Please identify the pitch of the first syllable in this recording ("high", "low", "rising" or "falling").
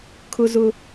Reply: high